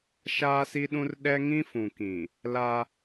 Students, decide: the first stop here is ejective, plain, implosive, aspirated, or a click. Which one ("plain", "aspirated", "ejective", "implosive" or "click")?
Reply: implosive